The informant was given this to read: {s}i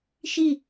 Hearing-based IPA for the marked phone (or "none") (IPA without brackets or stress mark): ʃ